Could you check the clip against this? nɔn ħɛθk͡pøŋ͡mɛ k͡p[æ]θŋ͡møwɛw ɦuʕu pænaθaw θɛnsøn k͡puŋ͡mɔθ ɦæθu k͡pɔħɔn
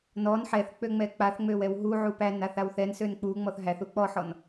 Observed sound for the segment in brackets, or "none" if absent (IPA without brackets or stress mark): a